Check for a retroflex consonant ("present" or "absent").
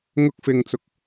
absent